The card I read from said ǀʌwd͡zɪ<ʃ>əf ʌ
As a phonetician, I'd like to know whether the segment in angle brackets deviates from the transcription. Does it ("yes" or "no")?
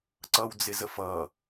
yes